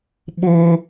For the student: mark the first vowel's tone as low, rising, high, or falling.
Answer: high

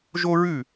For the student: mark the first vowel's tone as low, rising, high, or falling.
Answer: high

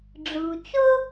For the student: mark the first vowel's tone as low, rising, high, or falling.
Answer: low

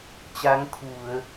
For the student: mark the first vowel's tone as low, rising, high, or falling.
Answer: rising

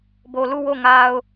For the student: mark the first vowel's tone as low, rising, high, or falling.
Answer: low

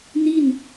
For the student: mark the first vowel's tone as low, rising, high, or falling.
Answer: falling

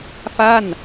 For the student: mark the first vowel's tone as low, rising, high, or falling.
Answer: falling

